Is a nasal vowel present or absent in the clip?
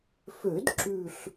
absent